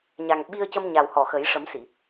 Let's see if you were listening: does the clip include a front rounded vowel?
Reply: no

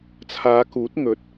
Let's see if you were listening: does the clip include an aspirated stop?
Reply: yes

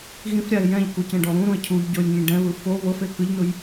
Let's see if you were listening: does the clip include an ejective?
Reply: no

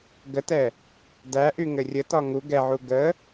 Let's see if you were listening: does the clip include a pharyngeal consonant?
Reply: yes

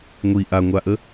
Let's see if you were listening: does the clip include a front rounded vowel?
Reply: no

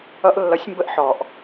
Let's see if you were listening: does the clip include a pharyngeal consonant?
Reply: yes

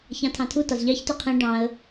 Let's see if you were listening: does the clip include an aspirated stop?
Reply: yes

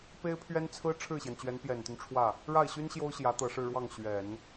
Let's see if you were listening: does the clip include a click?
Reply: no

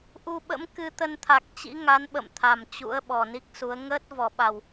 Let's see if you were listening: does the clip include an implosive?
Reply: yes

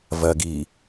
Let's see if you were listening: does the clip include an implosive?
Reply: no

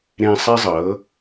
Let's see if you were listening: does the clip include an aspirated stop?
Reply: no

